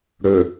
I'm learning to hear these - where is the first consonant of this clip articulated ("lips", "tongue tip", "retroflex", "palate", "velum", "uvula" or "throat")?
retroflex